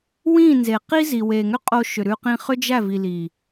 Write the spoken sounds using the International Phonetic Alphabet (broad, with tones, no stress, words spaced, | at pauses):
wĩ˦˨ nze˨ qi˦zi˨ we˨ŋʏ˦qʼo˧ ʃʏ˨ɾʉ˧ qĩ˧χʏ˦ d͡ʒæ˦˨vi˨ li˨